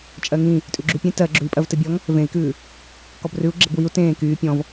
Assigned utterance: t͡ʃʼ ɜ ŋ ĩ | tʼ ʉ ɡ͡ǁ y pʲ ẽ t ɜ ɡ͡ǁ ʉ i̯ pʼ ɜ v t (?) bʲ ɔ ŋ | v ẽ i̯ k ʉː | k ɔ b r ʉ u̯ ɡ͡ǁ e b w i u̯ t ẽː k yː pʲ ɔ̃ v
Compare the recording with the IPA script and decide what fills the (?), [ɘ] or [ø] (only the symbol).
ɘ